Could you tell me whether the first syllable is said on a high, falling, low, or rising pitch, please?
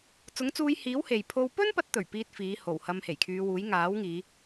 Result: rising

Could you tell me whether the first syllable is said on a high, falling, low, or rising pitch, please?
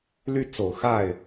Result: falling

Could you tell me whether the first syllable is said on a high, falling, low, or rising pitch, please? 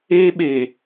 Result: high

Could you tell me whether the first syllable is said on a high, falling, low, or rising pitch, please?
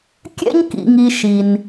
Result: high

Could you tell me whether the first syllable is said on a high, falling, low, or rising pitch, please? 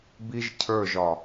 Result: high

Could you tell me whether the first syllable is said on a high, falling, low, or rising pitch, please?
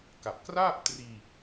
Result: low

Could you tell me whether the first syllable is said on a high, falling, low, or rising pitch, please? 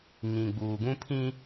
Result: low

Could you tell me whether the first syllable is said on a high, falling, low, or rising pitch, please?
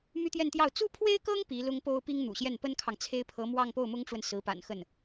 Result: high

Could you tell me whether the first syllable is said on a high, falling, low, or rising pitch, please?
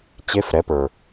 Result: rising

